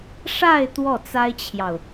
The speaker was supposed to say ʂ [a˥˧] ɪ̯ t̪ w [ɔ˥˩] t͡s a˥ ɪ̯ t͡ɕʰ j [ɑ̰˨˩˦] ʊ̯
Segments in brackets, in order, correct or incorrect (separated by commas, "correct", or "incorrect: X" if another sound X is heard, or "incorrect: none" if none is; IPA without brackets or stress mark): correct, correct, incorrect: ɑ˨